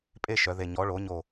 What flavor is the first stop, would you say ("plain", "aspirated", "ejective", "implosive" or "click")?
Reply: ejective